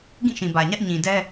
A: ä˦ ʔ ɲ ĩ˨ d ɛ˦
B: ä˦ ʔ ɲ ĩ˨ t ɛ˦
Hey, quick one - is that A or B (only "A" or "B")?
A